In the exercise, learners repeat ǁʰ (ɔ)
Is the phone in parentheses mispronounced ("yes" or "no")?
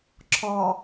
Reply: no